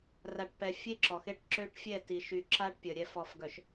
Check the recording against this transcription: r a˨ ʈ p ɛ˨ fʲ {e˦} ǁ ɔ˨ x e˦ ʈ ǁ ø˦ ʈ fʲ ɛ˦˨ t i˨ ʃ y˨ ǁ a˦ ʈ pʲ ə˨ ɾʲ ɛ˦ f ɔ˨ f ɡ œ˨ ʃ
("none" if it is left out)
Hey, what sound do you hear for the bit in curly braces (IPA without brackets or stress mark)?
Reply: e˦